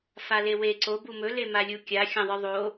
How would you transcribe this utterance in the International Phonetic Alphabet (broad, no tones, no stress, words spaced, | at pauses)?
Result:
falewe ǀo bumɵ lemalʲukʲa xʲɐ̃ðˤɨðˤo